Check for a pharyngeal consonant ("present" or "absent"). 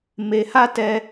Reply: absent